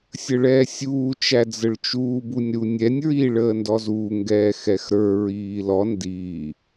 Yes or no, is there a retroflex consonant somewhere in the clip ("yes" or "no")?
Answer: yes